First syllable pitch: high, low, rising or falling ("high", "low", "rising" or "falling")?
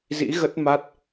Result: rising